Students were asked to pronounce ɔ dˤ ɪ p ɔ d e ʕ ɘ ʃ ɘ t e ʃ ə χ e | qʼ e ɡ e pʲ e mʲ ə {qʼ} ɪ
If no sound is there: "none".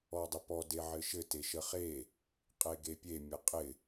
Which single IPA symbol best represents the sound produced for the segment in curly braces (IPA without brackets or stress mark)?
qʼ